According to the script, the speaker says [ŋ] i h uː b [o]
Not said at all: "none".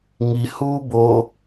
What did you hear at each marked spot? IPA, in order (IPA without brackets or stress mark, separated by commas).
ŋ, o